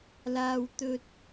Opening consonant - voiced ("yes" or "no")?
yes